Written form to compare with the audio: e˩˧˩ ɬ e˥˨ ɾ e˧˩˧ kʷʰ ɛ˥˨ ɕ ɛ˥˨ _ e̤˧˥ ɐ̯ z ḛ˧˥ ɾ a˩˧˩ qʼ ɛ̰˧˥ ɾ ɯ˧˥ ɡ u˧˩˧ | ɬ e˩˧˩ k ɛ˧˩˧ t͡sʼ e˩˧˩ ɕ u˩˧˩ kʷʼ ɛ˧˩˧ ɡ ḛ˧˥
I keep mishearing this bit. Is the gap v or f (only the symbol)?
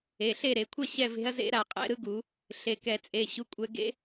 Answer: v